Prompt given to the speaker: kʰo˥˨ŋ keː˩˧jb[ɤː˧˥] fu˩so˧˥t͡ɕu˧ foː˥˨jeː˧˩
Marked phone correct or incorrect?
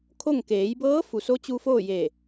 correct